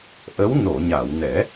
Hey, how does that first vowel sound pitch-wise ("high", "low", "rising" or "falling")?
rising